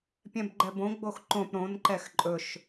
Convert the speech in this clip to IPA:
pʲ ɛ̃ b ɡ͡ǃ ɛ b õ ɡ͡b o x ǃ õ p ɾ õ n ǃ ɛ x ǃʼ ɵ ʃ

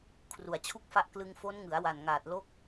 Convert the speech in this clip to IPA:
kʰ r u˩˦ a̯ t͡ɕʰ u˥˩ k̚ f a˥˩ ʔ k l ɯ˧ ŋ f o˦˥ n ŋ ɯ˩˦ a̯ w a˨˩ n ŋ aː˨˩ t̚ l o˦˥ k̚

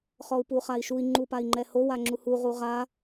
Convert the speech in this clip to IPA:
χ ɔ u̯ p u χ a i̯ ʃ u i̯ ŋ͡ǃ u p a i̯ ŋ͡ǃ ɛ h o w a ŋ͡ǁ u h u ʁ u ʁ a

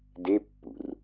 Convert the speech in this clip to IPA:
d e pː ṵ r

